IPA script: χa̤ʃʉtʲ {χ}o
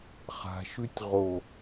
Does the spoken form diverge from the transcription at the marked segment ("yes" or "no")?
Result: yes